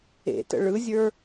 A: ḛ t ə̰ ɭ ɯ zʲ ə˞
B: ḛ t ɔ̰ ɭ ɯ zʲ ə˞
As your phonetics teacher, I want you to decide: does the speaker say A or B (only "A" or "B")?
A